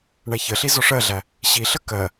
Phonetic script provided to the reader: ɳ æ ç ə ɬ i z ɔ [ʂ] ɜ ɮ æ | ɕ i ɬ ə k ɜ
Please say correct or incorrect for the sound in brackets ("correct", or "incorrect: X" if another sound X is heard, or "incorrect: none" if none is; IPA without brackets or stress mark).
correct